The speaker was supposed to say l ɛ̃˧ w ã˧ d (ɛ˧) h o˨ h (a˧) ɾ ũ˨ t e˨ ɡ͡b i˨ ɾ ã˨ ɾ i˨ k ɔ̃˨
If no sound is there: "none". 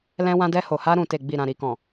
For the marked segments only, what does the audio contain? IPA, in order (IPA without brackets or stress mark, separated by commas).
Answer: ɛ˧, a˧